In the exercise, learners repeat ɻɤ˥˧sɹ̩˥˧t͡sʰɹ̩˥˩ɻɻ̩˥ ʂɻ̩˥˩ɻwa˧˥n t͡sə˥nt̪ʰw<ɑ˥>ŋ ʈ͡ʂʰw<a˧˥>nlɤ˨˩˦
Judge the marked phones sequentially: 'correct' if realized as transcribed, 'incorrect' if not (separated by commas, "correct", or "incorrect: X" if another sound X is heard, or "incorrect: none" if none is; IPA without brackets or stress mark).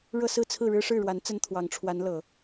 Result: incorrect: ɑ˧˥, correct